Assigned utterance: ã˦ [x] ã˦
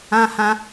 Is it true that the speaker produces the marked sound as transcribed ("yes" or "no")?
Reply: no